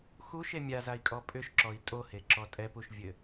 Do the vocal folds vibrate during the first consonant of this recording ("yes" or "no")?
no